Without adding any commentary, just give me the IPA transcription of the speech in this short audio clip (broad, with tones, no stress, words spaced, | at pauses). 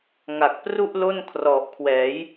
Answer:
ŋa˨˩k̚pru˥˩ʔ lo˥˩nkʰrɔ˨˩ʔkʰwɛː˩˦j